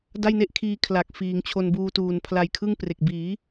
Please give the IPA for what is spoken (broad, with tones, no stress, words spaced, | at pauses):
da˥˩jne˥˩ʔkʰiː˧ kʰla˨˩k̚ fiː˩˦ŋt͡ɕʰo˧nbuː˧tuː˨˩n pʰla˧jkʰɯ˥˩ŋ pre˨˩k̚ biː˩˦